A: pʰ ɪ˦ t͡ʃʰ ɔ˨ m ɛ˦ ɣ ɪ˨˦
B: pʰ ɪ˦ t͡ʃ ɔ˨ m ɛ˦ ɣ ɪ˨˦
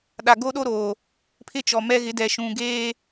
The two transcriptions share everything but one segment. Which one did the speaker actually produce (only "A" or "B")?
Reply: B